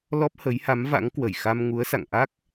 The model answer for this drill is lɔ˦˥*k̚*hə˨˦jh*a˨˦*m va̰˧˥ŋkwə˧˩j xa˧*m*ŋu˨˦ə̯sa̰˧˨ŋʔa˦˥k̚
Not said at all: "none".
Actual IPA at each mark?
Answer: p̚, a˨˦, m

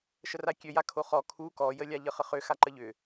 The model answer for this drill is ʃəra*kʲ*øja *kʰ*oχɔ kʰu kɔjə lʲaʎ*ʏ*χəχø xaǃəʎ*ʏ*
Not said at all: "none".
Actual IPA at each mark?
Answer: kʲ, kʰ, ə, ʏ

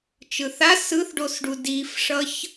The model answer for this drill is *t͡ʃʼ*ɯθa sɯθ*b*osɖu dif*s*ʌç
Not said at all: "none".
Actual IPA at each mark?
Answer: t͡ʃ, ɖ, ʂ

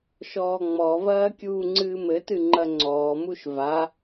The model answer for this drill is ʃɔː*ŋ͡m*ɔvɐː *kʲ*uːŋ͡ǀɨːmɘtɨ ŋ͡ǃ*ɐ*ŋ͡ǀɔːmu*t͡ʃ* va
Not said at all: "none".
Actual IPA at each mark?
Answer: ŋ͡m, kʲ, ɐ, ʃ

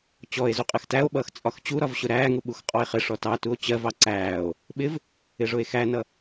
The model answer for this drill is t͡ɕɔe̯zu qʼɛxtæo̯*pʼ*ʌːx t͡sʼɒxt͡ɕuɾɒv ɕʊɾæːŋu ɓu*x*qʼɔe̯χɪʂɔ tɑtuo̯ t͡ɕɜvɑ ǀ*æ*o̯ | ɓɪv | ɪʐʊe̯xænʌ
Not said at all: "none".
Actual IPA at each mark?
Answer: ɓ, x, æː

